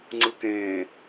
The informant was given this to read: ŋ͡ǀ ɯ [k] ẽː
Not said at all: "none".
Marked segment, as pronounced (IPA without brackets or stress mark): k